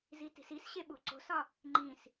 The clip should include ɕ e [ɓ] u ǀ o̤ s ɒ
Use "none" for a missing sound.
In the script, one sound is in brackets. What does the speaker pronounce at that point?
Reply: ɓ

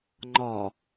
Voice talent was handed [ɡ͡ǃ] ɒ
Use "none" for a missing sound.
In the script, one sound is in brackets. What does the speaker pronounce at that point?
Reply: ŋ͡ǃ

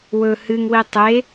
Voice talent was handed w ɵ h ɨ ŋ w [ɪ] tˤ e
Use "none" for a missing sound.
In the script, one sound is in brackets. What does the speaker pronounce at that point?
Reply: i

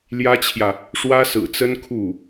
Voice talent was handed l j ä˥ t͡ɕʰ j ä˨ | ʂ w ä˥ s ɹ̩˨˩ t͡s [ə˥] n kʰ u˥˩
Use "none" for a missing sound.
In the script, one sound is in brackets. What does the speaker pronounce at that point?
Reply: ə˥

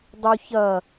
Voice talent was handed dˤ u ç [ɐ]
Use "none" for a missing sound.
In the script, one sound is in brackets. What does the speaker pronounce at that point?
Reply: ɐ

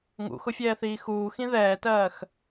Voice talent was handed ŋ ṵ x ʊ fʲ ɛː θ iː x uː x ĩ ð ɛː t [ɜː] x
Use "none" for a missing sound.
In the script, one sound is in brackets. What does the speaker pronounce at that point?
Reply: ɜː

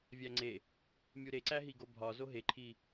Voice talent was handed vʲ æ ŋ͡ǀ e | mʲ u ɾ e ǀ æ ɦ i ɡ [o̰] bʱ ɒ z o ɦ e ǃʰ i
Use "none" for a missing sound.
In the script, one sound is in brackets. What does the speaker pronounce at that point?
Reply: o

